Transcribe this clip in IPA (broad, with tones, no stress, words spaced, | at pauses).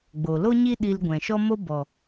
ɡ͡bo˨lo˦ɲi˦ ɗi˧lɡʷɛ̃˨ʃɔ˦mo˦ bɔ˨